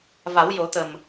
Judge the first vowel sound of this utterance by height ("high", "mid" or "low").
low